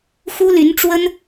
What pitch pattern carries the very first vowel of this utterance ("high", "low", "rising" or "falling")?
high